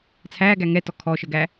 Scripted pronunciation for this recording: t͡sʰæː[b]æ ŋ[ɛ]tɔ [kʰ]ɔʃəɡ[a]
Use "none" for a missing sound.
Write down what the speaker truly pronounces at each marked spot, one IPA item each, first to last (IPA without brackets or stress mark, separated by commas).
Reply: ɡ, ɛ, kʰ, æ